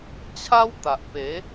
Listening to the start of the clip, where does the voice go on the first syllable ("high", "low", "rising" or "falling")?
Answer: high